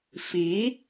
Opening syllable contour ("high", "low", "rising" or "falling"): rising